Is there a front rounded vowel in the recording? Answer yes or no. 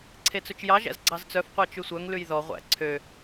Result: yes